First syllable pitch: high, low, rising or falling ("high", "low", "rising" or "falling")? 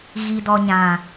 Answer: low